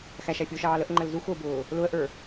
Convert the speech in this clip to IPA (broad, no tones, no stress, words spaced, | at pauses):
xæʃæ fʲʊːʃɑːləʔŋ͡ǃəl zuxʊːbʊː | lʊə̯ʔə˞